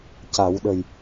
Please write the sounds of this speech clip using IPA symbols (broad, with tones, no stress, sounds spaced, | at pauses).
c a˨˩˦ w ɗ ə˨˩ j